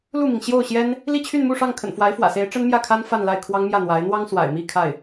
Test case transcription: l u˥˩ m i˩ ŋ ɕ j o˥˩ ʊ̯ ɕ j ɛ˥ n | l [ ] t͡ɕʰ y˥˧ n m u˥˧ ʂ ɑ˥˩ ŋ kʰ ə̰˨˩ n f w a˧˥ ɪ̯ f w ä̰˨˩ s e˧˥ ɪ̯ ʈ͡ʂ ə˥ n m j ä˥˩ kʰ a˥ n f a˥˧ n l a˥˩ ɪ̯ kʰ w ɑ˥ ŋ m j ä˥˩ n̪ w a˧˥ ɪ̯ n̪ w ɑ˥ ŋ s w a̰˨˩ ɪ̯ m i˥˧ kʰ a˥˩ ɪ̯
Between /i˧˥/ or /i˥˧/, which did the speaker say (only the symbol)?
i˥˧